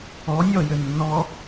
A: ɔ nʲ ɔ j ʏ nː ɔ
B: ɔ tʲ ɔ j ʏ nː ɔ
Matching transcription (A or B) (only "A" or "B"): A